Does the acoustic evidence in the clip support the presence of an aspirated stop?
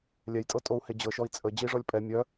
no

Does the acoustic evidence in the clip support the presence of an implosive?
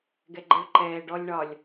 no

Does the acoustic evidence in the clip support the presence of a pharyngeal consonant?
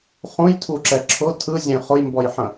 yes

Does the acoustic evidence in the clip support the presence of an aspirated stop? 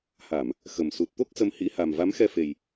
no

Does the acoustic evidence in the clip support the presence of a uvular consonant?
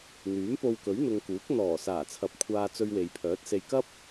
no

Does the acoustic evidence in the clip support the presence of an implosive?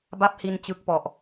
no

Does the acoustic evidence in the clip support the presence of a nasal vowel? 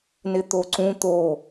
yes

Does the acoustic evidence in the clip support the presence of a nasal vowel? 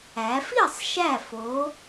no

